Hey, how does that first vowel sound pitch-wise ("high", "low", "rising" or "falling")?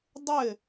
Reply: falling